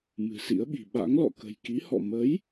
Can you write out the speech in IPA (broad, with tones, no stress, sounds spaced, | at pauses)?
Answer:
m ɨ̤˨˩ s ḭ˧˥ ə̯ ɓ i̤˨˩ ɓ a̰˧˥ ŋ l ɔ̰˧˨ k ə̤˨˩ j k i˨˦ h ɔ̰˧˨ m ə˨˦ j